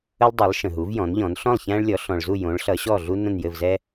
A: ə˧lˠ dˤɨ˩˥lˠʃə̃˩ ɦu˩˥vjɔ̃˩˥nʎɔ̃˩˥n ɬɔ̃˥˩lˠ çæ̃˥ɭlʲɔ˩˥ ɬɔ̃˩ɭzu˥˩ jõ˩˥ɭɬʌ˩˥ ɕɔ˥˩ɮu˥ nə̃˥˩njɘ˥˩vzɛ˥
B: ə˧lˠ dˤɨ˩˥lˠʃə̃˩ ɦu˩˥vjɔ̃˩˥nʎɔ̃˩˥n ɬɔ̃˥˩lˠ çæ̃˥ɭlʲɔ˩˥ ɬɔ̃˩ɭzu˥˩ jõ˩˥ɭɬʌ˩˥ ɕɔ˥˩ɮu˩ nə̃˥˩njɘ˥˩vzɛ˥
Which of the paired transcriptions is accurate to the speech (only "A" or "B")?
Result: A